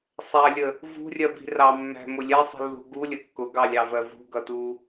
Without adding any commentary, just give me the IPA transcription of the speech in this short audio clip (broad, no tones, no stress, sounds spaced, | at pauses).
sˤ æ lʲ ə | v ṳ rʲ ɜ b i̤ r ɑ mː æ̤ m ʊ lʲ ɛ sˤ i̤ lː ṳ ɡ u lʲ ə kː ʊ ɡ ɑ lʲ ɑ v ɜ v ṳ ɡ ʌ t u